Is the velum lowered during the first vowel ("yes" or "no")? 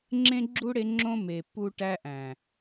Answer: yes